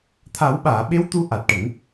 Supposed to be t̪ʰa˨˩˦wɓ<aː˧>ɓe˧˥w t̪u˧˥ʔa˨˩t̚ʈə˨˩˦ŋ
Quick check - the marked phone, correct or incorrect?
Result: incorrect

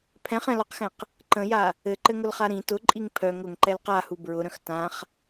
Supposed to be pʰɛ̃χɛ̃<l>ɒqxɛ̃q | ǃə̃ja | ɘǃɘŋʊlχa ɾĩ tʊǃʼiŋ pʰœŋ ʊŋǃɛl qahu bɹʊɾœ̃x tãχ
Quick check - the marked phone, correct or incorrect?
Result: correct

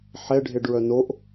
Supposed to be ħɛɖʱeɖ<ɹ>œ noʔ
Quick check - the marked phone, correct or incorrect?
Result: correct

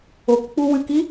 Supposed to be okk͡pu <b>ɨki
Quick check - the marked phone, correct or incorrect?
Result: incorrect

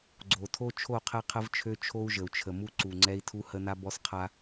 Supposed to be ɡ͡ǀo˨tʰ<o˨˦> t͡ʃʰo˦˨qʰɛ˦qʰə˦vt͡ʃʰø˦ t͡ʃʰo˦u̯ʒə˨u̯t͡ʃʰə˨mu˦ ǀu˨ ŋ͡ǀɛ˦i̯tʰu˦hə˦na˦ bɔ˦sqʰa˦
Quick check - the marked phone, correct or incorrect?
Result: incorrect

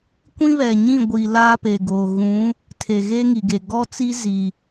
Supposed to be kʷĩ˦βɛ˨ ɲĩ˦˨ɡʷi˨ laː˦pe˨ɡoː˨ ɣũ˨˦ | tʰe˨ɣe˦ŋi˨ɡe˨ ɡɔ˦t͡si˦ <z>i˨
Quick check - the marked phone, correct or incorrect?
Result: correct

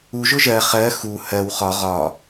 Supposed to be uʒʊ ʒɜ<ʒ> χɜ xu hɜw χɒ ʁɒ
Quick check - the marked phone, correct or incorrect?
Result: incorrect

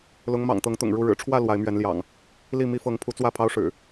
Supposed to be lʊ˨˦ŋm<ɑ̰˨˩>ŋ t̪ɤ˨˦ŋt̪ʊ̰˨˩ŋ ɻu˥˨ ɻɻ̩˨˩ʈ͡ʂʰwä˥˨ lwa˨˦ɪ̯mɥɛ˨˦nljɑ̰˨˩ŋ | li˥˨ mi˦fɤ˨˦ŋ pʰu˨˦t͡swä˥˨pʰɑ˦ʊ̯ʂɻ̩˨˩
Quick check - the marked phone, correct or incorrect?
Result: correct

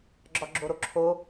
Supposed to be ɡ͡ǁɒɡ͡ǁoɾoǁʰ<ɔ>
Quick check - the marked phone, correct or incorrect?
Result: incorrect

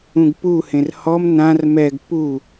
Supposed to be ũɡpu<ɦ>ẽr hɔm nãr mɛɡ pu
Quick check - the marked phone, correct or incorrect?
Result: incorrect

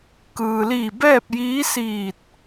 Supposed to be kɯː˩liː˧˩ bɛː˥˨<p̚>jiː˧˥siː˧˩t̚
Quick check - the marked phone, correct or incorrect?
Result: correct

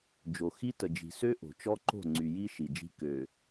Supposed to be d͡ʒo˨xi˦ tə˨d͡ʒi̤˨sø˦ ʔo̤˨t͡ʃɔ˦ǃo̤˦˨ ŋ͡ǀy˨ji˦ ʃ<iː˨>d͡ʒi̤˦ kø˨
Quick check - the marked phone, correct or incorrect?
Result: incorrect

